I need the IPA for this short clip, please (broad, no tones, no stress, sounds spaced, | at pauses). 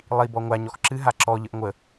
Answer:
lˠ i b ɔ ŋʷ a ɲ ɔ x ǁ ɨ ɦ a ǁ ɔ ʎ ə ʔ ŋʷ ə